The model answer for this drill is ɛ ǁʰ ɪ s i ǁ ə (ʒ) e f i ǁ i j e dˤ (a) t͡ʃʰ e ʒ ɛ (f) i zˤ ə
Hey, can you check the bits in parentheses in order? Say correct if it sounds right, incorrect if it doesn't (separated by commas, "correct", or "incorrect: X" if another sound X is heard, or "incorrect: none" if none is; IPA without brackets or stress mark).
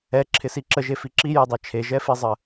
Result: correct, incorrect: æ, correct